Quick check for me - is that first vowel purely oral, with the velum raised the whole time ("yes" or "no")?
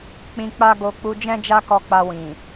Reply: no